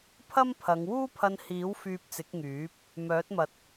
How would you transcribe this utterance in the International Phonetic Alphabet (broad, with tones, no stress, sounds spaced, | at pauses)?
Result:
pʰ ɐ˥ m pʰ ɐ˨˧ ŋ w uː˥ pʰ ɐ˧ n h iː˨˥ w f yː˧ p̚ t͡s ɪ˨˥ k̚ ŋ yː˨˥ p̚ | m œː˨˥ t̚ m ɐ˨˥ t̚